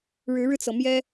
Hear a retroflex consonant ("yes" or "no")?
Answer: yes